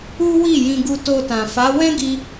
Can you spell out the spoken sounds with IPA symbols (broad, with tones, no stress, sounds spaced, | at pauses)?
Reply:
u˦ w i˦˨ j ĩ˧ ɡ u˧ t o˧ t ã˨ f a˨˦ w ɛ̃˦ ɡ i˧